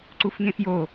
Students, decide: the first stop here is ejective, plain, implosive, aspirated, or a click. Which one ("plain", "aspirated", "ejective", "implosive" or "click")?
click